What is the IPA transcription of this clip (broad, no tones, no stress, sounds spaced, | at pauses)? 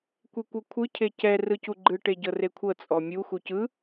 kʷ e kʷ ɤ kʷʰ ɯ cʰ e c ɛ r ɯ c u ɡ͡ǃ ɯ ʈ e ɟ ɤ r e kʷʰ ɤ t͡sʼ ɔ mʲ u x u c ɯ